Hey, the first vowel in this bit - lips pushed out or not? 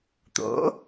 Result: yes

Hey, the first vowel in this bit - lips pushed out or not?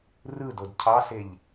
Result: no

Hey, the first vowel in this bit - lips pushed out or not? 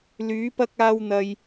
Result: yes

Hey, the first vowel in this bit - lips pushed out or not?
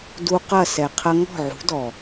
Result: yes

